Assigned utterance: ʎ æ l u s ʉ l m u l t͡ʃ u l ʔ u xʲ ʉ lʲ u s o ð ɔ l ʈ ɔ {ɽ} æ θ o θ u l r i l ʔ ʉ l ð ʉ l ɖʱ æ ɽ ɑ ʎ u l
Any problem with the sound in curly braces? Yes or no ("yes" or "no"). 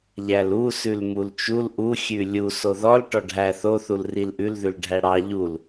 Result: yes